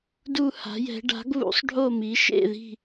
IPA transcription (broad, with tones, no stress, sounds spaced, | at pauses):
d u˥˩ h a̤˩˥ j ɛ̤˩˥ ɖ a̤˩˥ ɡ β ṵ˩˥ sˤ ɖʱ o˥˩ m i˩˥ ʃ ḛ˥˩ ð i̤˥˩